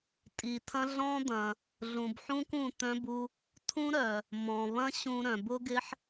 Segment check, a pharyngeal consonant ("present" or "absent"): present